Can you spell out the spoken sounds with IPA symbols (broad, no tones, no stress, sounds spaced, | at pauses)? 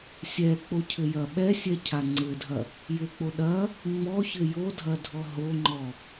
sʲ ɛ k͡p o cʰ ɘ j ɐ ɓ ɛ sʲ ɛ cʰ a ŋ͡ǀ ɘ dʱ ɐ | j ɘ k͡p o ɗ ɐ | ŋ͡m ɔ ç ɘ j o dʱ ɐ dʱ ɔ ɦ o ŋ͡ǃ ɔ